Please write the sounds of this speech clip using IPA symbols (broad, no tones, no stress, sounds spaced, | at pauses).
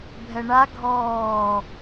bʱ ɛ ɳ a ɡʱ ɔː